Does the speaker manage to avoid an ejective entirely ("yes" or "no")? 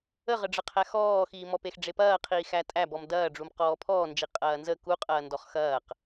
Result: no